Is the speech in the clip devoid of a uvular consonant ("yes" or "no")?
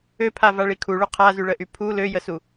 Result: no